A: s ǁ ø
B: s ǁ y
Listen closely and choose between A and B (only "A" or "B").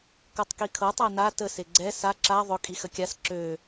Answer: A